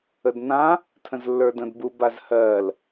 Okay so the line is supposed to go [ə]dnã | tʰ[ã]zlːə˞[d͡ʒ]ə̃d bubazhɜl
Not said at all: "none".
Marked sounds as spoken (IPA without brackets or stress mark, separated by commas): ə, ə̃, d